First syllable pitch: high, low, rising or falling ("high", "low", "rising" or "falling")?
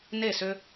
falling